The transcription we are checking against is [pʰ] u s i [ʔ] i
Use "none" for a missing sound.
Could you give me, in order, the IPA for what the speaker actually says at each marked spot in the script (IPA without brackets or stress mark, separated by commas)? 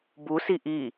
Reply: b, ʔ